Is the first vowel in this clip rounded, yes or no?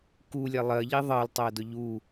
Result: yes